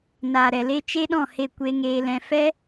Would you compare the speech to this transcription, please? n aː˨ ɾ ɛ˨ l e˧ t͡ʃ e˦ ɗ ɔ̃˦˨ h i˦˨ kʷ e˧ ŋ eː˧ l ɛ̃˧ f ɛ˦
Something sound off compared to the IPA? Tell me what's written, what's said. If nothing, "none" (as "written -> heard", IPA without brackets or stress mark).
i˦˨ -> e˦˨